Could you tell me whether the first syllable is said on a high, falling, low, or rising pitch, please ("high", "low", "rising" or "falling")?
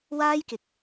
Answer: high